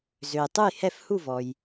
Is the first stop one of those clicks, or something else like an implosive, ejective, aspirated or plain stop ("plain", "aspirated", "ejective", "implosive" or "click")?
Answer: plain